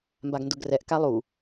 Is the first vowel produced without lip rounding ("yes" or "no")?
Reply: yes